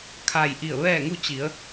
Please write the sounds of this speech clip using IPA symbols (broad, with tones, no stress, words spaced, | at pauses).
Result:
kʰa˧˩j ʔi˧˩ə̯ʋɛː˥˨ŋu˥˨ t͡ɕi˩˧ə̯